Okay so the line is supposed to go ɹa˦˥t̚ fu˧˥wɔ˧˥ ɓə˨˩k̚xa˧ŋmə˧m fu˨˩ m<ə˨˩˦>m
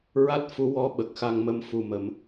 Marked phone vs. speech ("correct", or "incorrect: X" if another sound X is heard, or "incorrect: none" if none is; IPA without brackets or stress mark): correct